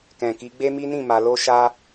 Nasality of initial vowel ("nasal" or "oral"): nasal